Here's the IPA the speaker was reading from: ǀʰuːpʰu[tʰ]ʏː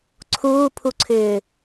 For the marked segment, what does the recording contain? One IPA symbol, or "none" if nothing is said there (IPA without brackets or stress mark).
ǀʰ